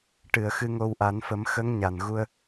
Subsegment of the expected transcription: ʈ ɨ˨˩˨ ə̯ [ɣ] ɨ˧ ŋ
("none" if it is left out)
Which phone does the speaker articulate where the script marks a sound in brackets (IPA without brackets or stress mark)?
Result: x